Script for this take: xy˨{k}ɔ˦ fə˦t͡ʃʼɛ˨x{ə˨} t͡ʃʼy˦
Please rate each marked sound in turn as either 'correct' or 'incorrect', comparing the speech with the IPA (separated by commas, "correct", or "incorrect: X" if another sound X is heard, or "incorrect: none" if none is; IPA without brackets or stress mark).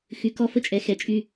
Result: correct, incorrect: ɛ˨